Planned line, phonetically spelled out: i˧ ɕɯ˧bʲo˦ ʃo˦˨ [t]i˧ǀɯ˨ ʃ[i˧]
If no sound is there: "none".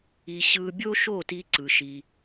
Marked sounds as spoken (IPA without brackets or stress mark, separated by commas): t, i˧